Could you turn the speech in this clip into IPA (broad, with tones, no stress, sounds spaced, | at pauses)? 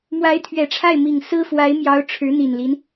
m w a˧˥ ɪ̯ t̪ʰ ɥ ɛ˨˩ ʈ͡ʂʰ a˥˩ ɪ̯ m i˨˩ ŋ s ɹ̩˥ f w a˧˥ ɪ̯ m j ɑ˧˥ ʊ̯ ʈ͡ʂʰ ɻ̩˧˥ n̪ i˨˩ n l i˦ n